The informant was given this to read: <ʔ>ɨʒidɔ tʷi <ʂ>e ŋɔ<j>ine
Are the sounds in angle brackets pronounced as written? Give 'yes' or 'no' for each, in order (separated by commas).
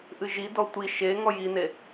yes, no, yes